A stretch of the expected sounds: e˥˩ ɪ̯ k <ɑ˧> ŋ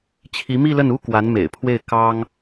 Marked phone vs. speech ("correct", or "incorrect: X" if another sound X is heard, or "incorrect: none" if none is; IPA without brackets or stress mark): incorrect: ɑ˥